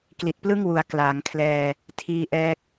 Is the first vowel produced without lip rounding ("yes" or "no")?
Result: yes